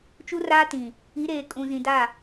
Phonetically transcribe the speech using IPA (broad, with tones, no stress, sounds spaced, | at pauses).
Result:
t͡ʃ u˦ r aː˦ t ĩ˨ | i˨˦ ɾ eː˨ kʼ ũ˨ z ĩ˨ d a˦˨